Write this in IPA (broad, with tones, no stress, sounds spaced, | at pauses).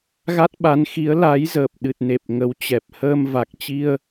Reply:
ɣ a˦˥ t̚ ɓ a˨˦ n x i˨˦ ə̯ l a˨˦ j z əː˨˩ p̚ ɗ ɨ˨˩ t̚ n e˨˩ p̚ ŋ ə˨˦ w t͡ɕ ɛ˨˩ p̚ h əː˧ m v a˨˩ k̚ t͡ɕ i˧ ə̯